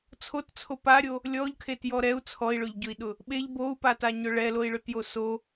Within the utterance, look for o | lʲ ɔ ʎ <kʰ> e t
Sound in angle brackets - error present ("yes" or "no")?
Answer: no